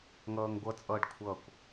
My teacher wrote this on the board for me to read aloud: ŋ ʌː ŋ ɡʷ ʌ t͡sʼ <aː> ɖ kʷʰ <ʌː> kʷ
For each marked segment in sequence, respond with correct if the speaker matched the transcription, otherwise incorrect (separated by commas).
incorrect, incorrect